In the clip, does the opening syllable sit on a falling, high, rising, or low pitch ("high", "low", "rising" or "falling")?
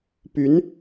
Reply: rising